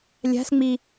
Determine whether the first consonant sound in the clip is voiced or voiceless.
voiced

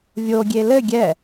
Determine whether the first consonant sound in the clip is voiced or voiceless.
voiced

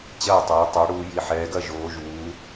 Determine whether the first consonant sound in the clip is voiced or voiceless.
voiceless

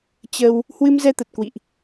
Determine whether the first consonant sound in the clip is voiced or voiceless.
voiceless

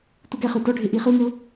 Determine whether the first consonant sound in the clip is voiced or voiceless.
voiceless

